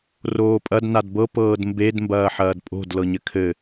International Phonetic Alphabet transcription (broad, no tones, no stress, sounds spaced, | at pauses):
r oː pʼ ɐ d n a d b ɤ p ɤː d m b e d m b ɐː ħ ɐː d pʼ o̤ d l ɤ ɲ ɘ kʰ ɘ